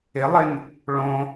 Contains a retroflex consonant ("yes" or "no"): yes